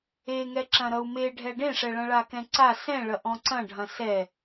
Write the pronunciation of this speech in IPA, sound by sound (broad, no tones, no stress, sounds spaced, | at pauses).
e ŋ ɛ ǁ ɐ̃ ɾ ʌ u̯ m e ɖʱ ɛ ɖ ẽ ʂ ɛ ɭ ɐ̃ ɭ a k ɛ̃ ǀ a s ɛ̃ ɭ ɐ ʔ ɔ̃ ǀ ɐ̃ ɖʱ ɐ̃ s ɛ